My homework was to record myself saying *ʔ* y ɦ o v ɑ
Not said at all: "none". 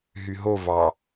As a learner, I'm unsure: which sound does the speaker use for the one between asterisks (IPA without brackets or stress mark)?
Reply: ɦ